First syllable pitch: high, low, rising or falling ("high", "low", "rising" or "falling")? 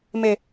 low